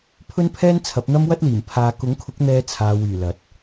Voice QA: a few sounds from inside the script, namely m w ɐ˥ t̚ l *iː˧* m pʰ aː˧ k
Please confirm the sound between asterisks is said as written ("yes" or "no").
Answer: no